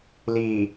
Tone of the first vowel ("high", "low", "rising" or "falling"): low